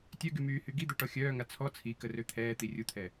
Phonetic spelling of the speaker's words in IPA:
tʲ œ ɡ y m yː h y ɡ i d̪ œ ʈ ɔ xʲ œː ŋ a t͡sʰ ɔ t͡sʰ i k ə r ø t̪ʰ ɛː t̪ i rʲ u t̪ʰ ɛ

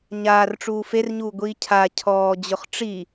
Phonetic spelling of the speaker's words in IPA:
ɲ aː r ʈ͡ʂ uː f e r ɲ uː ɡʷ iː cʰ a cʰ ɔː d͡ʑ ʊ χ ʈ͡ʂ i

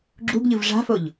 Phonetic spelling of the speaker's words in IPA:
ɡ͡ǁ u ɡ ʎ ɯ v ʐ a̤ f o ʎ

